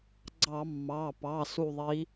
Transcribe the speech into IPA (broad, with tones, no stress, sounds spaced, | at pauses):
ɡ͡ǀ ɑ˧˩˧ mː ɑ˩˧˩ p ɑ˩˧˩ s u˦˨ ðˤ i˧˥